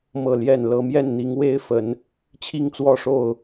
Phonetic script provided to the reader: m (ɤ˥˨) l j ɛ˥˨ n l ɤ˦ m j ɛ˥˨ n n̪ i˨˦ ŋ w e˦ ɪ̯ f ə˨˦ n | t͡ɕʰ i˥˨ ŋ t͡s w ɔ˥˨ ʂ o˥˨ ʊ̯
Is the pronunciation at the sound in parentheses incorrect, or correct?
correct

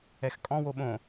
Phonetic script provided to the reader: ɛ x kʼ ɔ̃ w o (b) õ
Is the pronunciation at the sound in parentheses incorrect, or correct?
incorrect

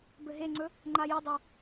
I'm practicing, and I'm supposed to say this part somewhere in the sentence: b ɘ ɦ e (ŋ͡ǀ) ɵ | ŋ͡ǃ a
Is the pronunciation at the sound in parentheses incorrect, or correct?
correct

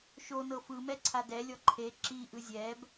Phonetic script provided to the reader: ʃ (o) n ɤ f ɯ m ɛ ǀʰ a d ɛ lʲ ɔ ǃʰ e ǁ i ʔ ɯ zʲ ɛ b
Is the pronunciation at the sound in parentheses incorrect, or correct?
correct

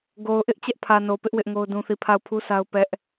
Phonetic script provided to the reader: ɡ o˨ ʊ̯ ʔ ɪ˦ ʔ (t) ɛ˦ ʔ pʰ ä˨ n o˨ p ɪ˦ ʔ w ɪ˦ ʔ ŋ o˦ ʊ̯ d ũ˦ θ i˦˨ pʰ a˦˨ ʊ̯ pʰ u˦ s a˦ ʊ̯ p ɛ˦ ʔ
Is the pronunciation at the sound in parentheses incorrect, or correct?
incorrect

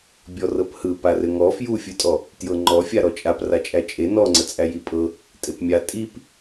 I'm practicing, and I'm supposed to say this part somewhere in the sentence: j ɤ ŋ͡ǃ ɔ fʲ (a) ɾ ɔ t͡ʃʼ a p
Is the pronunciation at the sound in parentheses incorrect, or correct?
correct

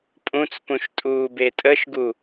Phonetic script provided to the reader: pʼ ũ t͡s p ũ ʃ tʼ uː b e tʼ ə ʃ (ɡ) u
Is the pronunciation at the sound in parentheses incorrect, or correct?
correct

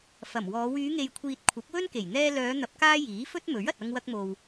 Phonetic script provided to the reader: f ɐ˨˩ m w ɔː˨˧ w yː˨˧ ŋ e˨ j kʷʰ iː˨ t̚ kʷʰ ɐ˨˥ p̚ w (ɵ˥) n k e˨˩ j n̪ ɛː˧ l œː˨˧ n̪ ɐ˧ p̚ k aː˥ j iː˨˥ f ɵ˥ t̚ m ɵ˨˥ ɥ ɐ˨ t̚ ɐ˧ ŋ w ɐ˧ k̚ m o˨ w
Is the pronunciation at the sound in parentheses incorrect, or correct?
correct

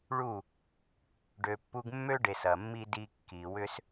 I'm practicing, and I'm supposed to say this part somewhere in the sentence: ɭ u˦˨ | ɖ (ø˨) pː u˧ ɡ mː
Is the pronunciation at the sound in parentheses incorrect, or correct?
correct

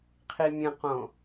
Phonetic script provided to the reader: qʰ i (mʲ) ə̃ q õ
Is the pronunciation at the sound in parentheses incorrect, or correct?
correct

